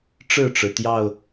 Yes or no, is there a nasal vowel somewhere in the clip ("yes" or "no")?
no